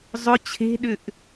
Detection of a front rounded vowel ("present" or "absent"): present